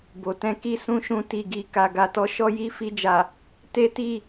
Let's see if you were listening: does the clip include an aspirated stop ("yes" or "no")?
no